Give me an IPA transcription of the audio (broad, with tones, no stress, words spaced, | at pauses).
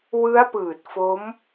wɯ˦˥a̯pɯː˨˩t̚fo˦˥m